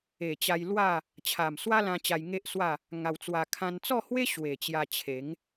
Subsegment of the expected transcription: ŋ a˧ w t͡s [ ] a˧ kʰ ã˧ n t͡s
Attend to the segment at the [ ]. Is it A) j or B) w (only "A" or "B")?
B